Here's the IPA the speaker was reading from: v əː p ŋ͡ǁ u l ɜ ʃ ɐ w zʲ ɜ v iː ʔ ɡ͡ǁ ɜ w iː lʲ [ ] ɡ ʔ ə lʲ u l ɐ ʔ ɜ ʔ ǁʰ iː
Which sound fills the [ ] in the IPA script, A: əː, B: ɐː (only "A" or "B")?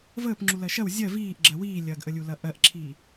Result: B